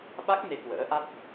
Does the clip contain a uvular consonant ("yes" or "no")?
no